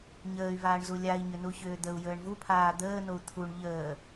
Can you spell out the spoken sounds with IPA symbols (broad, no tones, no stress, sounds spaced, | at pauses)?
ɲ əː y̯ v aː ɳ z u lʲ a i̯ ɲ ʏ n u ç ʏː d̪ ə u̯ j əː ɳ v u pʰ aː d̪ əː n o u̯ t̪ʰ u ɳ ʎ əː